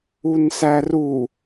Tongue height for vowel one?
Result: high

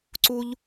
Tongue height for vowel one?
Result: high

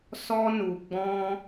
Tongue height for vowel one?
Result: mid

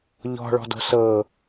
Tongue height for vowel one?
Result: mid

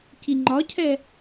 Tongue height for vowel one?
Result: high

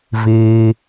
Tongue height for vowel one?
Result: high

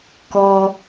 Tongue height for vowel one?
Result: mid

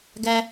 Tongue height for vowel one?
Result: low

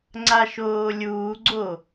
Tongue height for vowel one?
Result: low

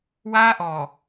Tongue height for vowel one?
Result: low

